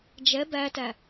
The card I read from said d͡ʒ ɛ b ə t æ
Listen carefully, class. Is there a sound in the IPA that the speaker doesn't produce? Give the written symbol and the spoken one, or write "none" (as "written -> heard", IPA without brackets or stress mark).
ə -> æ